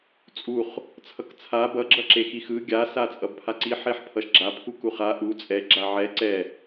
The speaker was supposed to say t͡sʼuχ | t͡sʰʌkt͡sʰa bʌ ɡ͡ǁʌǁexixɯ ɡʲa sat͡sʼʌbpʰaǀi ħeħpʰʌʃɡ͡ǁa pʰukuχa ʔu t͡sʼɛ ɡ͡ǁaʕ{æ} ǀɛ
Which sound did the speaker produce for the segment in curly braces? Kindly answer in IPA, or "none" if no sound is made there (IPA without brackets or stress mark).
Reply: ɛ